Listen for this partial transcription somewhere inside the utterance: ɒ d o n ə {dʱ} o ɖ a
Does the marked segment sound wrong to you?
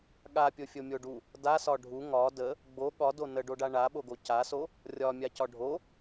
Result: yes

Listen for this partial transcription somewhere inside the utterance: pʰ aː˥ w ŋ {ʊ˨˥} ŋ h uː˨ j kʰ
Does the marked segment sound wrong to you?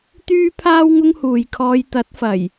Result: yes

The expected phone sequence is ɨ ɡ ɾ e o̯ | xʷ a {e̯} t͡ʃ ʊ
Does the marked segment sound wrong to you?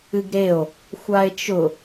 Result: no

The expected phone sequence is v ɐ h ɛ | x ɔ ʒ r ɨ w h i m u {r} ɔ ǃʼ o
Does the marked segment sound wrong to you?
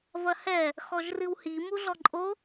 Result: yes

